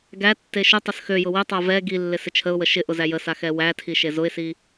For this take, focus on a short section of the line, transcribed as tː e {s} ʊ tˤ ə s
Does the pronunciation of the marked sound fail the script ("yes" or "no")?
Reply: yes